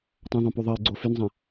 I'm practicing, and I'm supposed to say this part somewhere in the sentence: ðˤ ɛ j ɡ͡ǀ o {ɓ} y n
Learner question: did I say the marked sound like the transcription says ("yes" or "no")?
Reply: no